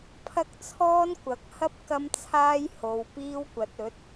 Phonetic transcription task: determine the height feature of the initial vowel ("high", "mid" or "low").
low